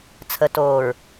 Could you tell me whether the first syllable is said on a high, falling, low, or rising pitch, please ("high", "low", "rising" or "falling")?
low